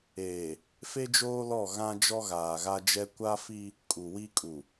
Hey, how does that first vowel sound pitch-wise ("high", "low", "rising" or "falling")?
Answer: low